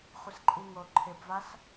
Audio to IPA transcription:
χʷɪsǃʼiŋo ǃʰɪbvas

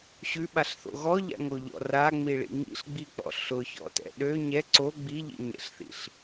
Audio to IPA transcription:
ɕʉɓaɬθo̰ ɣɔʎa̰ŋoʎɔ̰ raŋ͡miɭḭ ŋḭɬɡ͡bik͡pɔ̰ ɬʊçɔ̰tɛ̰ ɗø ɲɛ ǀo ɡ͡biʎḭɲɛ̰ɬθḭɬ

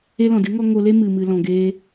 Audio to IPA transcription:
e˦ lɔ̃˨dɨ˨˦ ŋɔ˦ ŋo˧le˦mɨ˨ mɨ˨lɔ̃˨ɡe˧

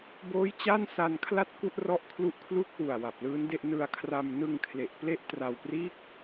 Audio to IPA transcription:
boː˦˥jt͡ɕa˥˩n sa˧nkʰla˥˩t̚ ku˥˩ʔrɔ˥˩ʔkʰlu˦˥ʔ kʰlu˥˩k̚wu˨˩a̯ wa˨˩p̚lɯː˦˥nde˥˩ʔ nɯ˧a̯kʰra˧m nɯ˧ŋkʰle˨˩ʔ ple˦˥ʔtra˧wpriː˥˩k̚

